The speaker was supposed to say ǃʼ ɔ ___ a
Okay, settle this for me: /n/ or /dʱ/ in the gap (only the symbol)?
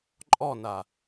n